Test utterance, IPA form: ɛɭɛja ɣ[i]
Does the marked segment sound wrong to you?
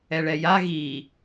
no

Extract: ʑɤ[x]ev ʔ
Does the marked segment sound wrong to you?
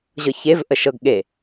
yes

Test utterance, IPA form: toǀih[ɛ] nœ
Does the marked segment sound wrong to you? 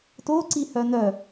yes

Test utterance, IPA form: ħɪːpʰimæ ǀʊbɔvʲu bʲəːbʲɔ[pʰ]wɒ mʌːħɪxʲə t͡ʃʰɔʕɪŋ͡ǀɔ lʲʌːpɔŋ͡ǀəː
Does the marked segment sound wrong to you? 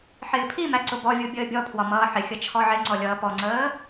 no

